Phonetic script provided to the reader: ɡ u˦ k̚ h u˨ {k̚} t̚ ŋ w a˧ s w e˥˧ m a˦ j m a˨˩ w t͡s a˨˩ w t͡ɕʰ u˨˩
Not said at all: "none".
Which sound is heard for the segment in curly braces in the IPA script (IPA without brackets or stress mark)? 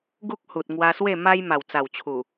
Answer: none